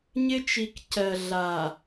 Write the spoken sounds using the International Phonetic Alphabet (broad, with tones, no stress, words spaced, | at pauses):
ɲɪ˦t͡ʃi˨k cɜ˨ɮa˨